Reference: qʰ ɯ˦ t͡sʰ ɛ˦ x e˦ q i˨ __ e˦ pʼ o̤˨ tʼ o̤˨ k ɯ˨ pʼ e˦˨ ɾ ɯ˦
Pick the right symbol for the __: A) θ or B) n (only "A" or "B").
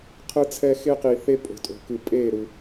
A